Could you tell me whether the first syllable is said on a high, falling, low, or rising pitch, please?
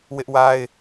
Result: high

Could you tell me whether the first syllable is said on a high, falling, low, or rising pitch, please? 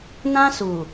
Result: high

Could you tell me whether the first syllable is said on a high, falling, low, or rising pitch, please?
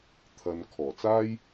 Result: low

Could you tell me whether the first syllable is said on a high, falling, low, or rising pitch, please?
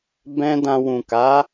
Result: high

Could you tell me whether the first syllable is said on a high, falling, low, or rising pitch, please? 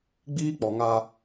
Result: high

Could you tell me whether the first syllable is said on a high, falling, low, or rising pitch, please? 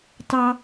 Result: high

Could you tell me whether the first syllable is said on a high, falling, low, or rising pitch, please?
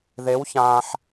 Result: rising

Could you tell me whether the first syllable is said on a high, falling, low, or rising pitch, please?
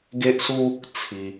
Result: high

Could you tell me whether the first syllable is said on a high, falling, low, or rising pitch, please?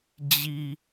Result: low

